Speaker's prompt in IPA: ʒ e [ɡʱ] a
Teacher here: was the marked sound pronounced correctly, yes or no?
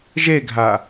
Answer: yes